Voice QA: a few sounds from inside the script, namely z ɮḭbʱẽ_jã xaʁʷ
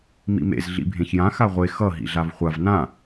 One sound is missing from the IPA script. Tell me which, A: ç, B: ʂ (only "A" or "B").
A